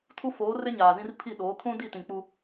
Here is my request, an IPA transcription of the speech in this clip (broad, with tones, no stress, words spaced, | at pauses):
tʰu˦foː˨˦ rɪ˦ɲaː˨zĩ˦r pʰi˦˨ɗoː˨˦ kʰũ˦di˦˨ tĩ˨k͡pu˦